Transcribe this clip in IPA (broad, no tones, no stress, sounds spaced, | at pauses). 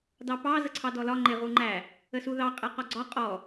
d ɑ p ɑ z ə ǀʰ ɑ d ɔ l ɒ ŋ͡ǃ ɪ ʁ u ŋ͡ǃ æ | ə s u ð ɑ qʼ ɛ q ɒ ɡ͡ǀ ɒ qʼ ɔ